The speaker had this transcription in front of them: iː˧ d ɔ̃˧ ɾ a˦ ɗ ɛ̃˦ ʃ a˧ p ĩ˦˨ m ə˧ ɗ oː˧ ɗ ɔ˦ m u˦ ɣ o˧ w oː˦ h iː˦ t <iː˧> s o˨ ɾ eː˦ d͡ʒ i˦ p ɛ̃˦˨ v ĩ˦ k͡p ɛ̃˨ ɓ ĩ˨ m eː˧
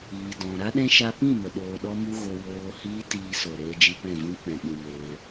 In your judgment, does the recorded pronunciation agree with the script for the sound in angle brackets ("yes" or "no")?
yes